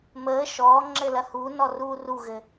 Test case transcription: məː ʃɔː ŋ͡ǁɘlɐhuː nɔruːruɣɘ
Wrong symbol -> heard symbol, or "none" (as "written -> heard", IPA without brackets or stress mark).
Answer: none